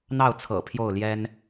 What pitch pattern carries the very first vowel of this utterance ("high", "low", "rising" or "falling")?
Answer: falling